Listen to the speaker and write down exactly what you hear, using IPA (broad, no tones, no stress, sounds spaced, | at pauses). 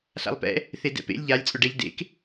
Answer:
ɬ a̰ lˠ p ɛ̰ | θ e d ɛ̰ p ḛ lʲ ʎ a lʲ t͡sʼ ʊ ɖ ɛ ʎ d ḛ k